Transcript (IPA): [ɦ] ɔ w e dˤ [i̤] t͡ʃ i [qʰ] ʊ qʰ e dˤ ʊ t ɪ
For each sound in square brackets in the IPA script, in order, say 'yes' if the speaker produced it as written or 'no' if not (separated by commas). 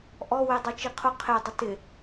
no, no, yes